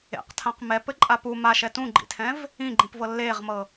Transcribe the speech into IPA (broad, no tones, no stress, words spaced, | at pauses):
ḛqtʰãq mɛpɘǃʼa pu maʃɛ tũɡ͡ǃḭtʰɛ̃v | ĩɡ͡ǃĩpvɤ lːeːʁmɤ